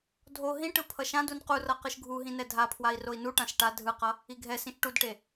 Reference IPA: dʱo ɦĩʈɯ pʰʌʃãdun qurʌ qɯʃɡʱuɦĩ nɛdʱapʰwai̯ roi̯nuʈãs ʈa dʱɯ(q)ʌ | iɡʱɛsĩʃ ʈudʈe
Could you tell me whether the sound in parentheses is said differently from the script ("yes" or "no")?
no